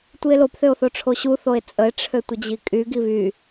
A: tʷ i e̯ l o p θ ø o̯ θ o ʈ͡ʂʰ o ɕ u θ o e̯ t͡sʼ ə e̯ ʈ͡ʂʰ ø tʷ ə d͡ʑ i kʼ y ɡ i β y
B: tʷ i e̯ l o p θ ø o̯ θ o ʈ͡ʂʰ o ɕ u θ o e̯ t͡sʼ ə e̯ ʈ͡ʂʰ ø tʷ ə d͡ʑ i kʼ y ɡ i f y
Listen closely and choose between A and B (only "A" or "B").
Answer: A